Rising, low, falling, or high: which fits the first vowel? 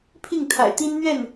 falling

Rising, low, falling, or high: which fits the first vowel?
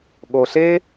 low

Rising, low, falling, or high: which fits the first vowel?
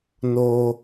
high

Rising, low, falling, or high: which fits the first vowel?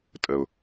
low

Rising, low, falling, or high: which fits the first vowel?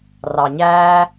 low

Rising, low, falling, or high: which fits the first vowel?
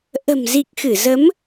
low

